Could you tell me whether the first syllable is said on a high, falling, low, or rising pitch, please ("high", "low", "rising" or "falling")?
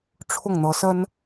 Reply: falling